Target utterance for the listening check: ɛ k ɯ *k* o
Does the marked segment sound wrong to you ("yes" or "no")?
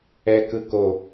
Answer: no